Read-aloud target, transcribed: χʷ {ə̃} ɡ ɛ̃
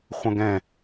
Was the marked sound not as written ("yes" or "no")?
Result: no